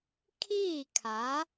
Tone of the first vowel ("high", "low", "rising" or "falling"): falling